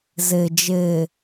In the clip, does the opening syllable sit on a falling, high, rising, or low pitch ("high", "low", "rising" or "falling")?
low